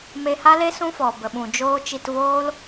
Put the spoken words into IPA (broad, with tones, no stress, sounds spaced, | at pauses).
m e˧ h a˦ l e˦ s ũ˦ f ɔ˨ b ə˨ ɓ ũ˨ d͡ʒ oː˦ t͡ʃ i˧ t v oː˦ l